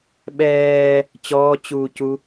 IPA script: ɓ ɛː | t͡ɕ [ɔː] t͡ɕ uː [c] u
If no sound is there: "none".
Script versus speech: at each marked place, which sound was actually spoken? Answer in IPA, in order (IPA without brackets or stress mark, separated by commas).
ɔː, c